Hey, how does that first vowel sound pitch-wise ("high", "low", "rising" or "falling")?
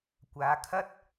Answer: rising